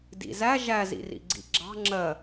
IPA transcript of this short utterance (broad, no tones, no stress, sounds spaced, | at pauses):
d ḭ z æ ʒ æ z ḭ r ḭ ɡ͡ǀ ḭ ɡ͡ǁ ɑ̤ ŋ͡ǁ ɜ